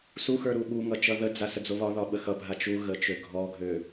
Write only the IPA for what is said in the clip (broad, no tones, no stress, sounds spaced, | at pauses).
s u x ə˞ ɾ u ɓ u ŋ ʌ t͡ʃ ʌ ð ə d͡z a s ə d͡z o β ɒ ð ɒ ɓ ə x ʌ bʱ a t͡ʃ u ɣ ə t͡ʃ ø ɡʱ ɔ ɡʱ ø